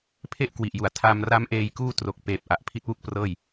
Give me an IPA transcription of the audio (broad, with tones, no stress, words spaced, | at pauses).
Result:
pʰe˥˩ʔkwi˨˩ʔju˨˩a̯ tʰa˧m ra˦˥mʔeː˧jkuː˥˩ tro˨˩k̚peː˨˩p̚ ʔa˨˩ʔpʰi˦˥t̚wu˥˩k̚prɤː˥˩j